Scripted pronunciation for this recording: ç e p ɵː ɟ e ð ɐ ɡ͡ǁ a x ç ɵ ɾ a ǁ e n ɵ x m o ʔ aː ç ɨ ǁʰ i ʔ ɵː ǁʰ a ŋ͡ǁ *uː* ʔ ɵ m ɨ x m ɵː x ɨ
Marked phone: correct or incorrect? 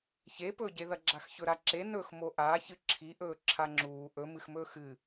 correct